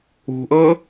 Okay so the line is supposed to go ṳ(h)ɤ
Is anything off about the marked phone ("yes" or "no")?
yes